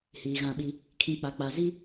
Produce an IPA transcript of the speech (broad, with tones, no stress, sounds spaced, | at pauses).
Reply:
h iː˨ ɣ ã˦˨ ɓ i˦ | kʰ ĩ˦ k͡p a˨ k͡p a˨ z i˦